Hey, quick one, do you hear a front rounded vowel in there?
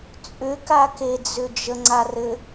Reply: yes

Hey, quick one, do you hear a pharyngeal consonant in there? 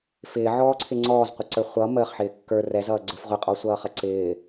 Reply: yes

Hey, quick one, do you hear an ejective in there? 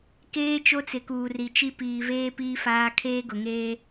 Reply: no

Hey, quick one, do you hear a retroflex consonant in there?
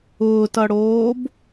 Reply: yes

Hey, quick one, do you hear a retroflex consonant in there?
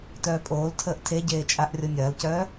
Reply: no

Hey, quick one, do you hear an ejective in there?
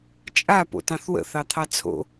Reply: yes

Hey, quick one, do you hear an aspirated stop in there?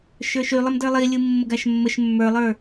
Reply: no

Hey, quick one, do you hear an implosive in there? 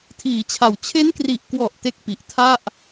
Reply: no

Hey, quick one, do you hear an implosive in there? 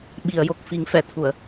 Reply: yes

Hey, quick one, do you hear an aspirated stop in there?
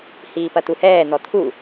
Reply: yes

